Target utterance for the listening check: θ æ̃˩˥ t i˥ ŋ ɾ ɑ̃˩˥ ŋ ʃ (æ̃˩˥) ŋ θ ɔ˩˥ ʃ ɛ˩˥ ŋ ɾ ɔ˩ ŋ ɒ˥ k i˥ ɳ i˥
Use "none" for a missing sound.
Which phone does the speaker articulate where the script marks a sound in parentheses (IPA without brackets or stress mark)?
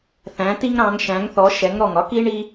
æ̃˩˥